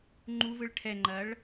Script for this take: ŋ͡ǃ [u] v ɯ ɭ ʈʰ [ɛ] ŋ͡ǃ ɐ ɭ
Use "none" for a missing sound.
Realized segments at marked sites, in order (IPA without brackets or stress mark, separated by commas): u, ɛ